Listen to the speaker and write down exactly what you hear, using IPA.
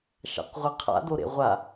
ʃ a̰ q ʁʷ ɐ qʰ a̰ d o ɾ ḛ ʁʷ a

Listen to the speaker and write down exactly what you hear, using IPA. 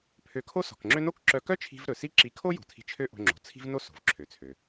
pʰ ø˧ kʰ o˥ s ɔ̤˩ k ŋ͡ǁ ø˥ n o˥ k ǁ œ˧ k œ˥ t͡ʃʰ i̤˧ v ɾ ɵ˩ s i˥ ǁ i˧ kʰ o˥ j o̤˩ tʰ i̤˧ t͡ʃʰ ø˥ ʔ o̤˧ ŋ͡ǁ o̤˩ t͡sʰ i̤˥ v n o˥ s o̤˩ v ǁʰ ø˩ t͡sʰ ø˩

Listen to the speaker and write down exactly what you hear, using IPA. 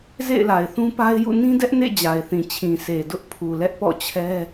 z ḛ˦˨ ɪ̯ l a˨ ɪ̯ θ ũ˦ p a˦ ɪ̯ j ṵ˦˨ n ĩ˦ d ɛ˦ ʔ n ḛ˦˨ d͡ʑ a˨ ɪ̯ θ ĩ˨ t͡ɕʰ ĩ˨ s e˨ d ʊ˦ ʔ pʰ u˨ l ɛ˦ ʔ p ɔ̰˦˨ t͡ɕʰ ɛ˦

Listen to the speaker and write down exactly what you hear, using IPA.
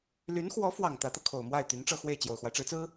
l y˧˥ n x w ɔ˧˥ f w ɑ˨˩ ŋ t̪ ä˧˥ t̪ ɤ˧ kʰ o˨˩ ʊ̯ m w a˥˩ ɪ̯ t̪ y˧˥ n ʈ͡ʂ ɤ˥˧ x w e˥˩ ɪ̯ t͡ɕ j o˨˩ ʊ̯ x w a˦ ɪ̯ ʈ͡ʂ ɻ̩˧˥ t͡s ɹ̩˥

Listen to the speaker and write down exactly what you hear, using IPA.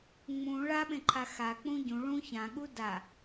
ŋ͡m ũ ɭ a ɓ ẽ ǃʰ a x a k͡p ũ ɟ ũ ɭ ũ ç ã ɠ u d a

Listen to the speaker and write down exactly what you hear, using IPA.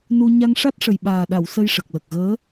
n u˧ ɲ a˧ ŋ ʂ a˦˥ t̚ ʂ ə˨˩ j ɓ aː˨˩ ɗ a˨˩˨ w s ə˧ j ʂ ə˨˩ k̚ l ə˨˩ k̚ ɣ əː˧˥

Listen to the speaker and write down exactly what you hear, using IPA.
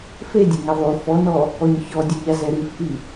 f e dʲ e ŋ ɛ ðˤ u f ɔ n ɔ | ɔ ɲ ç ɔ dʲ u ʎ a z ɛ ɾ i f ʔ i

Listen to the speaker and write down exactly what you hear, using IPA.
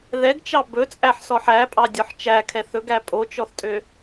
ð ɛ ɡ t͡ʃ ɑ b ɵ t͡sʼ æ ħ s ɔ ħ æ pʼ ɑ dʲ ɔ ħ t͡ʃ æ kʰ ɛ θ ɵ ɡ æ pʼ o t͡ʃ ɔ θ tʼ ø

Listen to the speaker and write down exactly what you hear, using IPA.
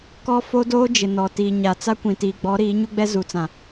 k ɔ˦ f o˦ d oː˦ d͡ʒ ɪ˨ n ɔ˨ t iː˨ ɲ a˨ t͡s a˦ kʷ ĩ˨ t iː˨ ɡ͡b ɔ˨˦ ɾ iː˨˦ ɲ u˦ ɡ͡b ɛ˦ z u˨ t͡s ã˨

